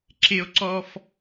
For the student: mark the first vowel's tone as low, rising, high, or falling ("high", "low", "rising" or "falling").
high